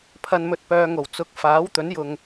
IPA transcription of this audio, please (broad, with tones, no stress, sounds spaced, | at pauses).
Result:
pʰ ɐ˨ n m ɵ˨ t̚ p œː˨ ŋ o˨˩ w t͡s ʊ˨˥ k̚ f aː˨˥ w t̪ ɵ˨˥ n j ʊ˨ ŋ